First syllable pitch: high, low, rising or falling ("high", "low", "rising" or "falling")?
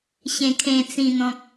low